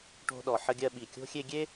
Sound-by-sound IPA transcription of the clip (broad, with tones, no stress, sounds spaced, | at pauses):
ʈ o̤˧ ɗ ɔ˩ ħ ə˧ ɡʲ ɜ˧ ɓ i˩ kʲ o̤˧ xʲ e˧ ɡʲ e˥